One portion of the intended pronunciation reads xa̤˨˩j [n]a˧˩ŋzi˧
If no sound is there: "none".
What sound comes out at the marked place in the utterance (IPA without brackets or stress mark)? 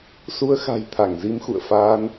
t̪ʰ